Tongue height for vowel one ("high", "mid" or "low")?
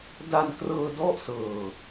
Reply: low